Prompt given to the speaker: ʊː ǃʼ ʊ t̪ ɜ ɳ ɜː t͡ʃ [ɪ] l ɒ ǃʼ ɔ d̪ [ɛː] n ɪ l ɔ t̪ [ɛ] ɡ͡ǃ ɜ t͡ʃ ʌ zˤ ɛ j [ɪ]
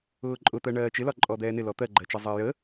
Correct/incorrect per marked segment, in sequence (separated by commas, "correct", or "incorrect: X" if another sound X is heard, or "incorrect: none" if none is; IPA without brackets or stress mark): correct, correct, incorrect: ɜ, incorrect: ə